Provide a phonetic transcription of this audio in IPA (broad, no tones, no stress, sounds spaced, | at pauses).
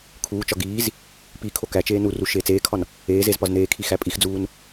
kʰ uː t͡ʃ ɒ ɡ iː z | p i kʰ o k æ t͡ʃ eː n u r u ʃ eː t͡s eː kʰ ɒ n | eː z e z p ɒ z n eː kʰ i x æ pʼ i x d͡z uː n